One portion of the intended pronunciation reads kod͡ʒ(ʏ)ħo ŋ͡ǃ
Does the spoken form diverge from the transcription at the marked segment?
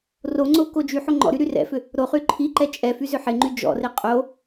yes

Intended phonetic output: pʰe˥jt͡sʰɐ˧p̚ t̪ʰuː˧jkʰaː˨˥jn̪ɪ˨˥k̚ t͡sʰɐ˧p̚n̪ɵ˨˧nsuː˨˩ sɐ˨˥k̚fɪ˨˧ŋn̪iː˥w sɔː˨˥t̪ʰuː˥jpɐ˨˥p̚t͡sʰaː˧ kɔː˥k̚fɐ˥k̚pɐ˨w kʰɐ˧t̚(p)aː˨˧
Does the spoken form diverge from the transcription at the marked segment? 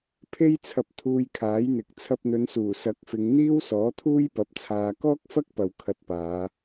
no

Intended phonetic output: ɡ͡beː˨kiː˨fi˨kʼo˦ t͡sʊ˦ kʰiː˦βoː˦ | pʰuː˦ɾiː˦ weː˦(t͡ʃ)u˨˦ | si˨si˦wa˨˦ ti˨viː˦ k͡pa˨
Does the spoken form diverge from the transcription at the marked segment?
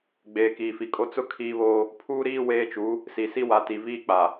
no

